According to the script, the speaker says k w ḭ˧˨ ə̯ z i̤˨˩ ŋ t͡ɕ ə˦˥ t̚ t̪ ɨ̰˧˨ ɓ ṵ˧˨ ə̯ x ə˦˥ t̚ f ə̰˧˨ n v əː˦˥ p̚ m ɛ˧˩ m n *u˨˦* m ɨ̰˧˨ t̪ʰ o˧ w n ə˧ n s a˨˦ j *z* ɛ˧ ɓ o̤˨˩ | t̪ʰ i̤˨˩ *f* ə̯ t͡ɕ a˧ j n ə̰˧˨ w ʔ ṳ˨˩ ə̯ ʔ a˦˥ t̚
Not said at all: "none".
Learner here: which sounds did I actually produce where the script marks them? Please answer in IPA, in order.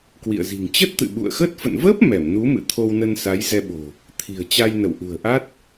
u˨˦, z, none

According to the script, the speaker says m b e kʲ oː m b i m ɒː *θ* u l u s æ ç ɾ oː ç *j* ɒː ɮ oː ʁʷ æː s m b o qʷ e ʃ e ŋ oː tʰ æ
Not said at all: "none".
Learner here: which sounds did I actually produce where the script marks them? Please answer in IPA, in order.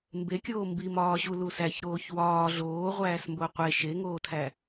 ɕ, w

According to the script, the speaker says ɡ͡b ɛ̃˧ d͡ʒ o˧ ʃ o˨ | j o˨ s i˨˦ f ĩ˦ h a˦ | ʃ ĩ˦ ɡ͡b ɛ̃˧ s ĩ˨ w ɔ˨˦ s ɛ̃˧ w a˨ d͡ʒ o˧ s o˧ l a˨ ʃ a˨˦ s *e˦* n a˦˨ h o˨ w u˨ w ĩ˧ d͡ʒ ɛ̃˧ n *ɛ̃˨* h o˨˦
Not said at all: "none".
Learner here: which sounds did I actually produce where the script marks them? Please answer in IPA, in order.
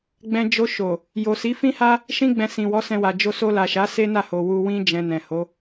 e˦, ɛ̃˨

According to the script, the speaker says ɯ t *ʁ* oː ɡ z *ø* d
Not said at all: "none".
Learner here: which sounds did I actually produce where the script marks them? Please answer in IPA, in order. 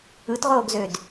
ʁ, ø

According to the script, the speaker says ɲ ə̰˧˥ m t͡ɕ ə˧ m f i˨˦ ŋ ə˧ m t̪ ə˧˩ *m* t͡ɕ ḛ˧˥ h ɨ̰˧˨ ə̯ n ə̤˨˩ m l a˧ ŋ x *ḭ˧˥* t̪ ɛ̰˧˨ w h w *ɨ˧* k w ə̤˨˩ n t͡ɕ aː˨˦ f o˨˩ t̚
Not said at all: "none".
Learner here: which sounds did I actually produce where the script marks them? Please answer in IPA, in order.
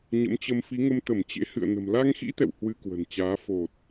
m, ḭ˧˥, ɨ˧

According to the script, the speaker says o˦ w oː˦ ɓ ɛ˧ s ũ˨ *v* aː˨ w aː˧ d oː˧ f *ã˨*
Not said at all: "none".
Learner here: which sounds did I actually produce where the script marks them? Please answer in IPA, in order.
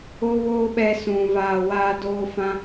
v, ã˧

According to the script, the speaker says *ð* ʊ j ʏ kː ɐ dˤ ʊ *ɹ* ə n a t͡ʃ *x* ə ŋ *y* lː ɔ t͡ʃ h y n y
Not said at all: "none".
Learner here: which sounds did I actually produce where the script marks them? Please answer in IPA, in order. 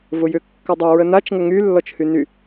v, ɹ, ŋ, y

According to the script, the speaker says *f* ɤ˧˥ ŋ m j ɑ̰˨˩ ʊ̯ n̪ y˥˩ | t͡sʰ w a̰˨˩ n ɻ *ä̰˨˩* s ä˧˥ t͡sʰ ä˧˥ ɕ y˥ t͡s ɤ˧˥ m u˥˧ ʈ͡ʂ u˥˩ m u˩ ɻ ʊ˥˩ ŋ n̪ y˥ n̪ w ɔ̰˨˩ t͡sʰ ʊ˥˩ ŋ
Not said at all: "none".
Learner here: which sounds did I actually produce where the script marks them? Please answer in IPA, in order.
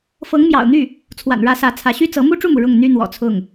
f, ä˧˥

